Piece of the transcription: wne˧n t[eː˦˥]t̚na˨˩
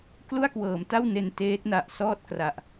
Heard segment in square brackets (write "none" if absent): eː˦˥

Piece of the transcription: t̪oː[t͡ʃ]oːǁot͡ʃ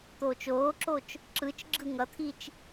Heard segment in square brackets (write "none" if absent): t͡ʃ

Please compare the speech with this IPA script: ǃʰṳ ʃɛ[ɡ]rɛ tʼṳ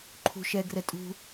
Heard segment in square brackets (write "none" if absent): ɡ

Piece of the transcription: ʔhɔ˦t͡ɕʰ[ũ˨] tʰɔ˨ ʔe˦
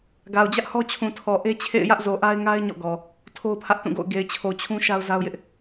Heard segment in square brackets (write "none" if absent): ũ˨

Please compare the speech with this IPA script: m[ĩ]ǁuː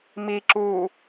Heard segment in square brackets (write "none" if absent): i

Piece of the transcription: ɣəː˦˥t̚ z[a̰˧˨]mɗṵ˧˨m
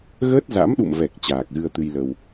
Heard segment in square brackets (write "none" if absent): a̰˧˥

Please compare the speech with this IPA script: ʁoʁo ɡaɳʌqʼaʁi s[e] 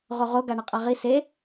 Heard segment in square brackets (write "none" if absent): e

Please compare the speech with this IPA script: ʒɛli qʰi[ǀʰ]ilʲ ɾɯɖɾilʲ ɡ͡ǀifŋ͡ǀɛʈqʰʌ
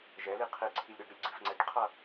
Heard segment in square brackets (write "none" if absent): ǀʰ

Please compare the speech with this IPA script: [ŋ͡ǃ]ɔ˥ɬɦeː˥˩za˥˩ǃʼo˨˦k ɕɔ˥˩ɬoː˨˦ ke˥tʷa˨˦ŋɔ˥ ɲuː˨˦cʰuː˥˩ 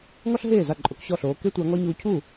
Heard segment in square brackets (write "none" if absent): ŋ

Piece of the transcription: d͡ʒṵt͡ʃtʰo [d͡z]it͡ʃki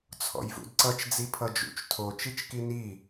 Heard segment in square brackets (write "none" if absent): t͡ʃ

